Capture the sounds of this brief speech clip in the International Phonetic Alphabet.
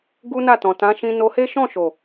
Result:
ɡ u˦ n a˦˨ t ɔ̃˨ t ã˨˦ ʃ ĩ˧ n o˧ h e˦ ʃ ɔ̃˦˨ ʃ o˨

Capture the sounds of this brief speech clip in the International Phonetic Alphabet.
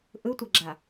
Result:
ʔ ɯ tʷ ʌ ɡ͡ǁ a

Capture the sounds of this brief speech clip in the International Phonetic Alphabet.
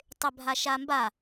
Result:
tˤ ɪ bʱ a ʃ a m b a

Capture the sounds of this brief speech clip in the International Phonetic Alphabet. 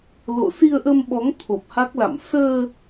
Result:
l o̰˧˨ s i˧ ə̯ ʔ ə˧ m ɓ ɔ˨˦ ŋ t̪ʰ o˨˩ p̚ h a˦˥ k̚ l a̰˧˨ m s əː˧

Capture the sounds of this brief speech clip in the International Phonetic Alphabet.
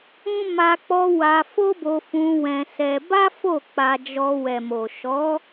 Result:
ũ˦ m a˧ k͡p ɔ˧ w a˧ f o˦ b o˧ f ũ˧ w ɛ̃˧ s ɛ˧ b a˦ f o˦˨ k͡p a˧ d͡ʒ ɔ˧ w ɛ˨ m o˨ ʃ ɔ˨˦

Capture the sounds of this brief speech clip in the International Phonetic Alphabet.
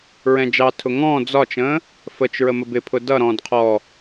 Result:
ɹ ɛ̃ d͡ʒ ɑ tʰ ʊ ŋ ɔ̃ː d͡z ɒ t͡ʃ ə̃ː | f ə t͡ʃ ɹ ə m ə b ɪ pʰ ʊ d ʌ ɾ ɔ̃ː d qʰ ɔ

